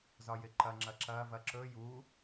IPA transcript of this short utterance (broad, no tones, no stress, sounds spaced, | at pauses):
z ɒ j ɪ ǃ ɐ ŋ͡ǁ ɐ ǁ ɐː v ɐ ǁ ɵ j u